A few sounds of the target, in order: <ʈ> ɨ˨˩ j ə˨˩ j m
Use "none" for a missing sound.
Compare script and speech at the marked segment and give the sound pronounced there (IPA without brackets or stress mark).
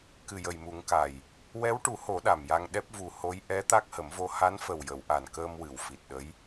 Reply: k